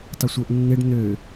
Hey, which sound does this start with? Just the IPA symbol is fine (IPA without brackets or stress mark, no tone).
tˤ